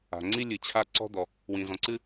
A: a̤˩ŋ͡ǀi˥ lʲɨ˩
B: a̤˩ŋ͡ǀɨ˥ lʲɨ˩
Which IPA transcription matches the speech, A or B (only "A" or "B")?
A